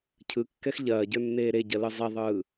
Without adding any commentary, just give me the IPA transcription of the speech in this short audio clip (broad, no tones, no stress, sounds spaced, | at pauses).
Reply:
cʰ ɯ kː ɛ x ʎ ɐː ɟ ə˞ nː eː ɾ e ɟ ɐ l ɯ zˤ ɛ ðˤ ɯː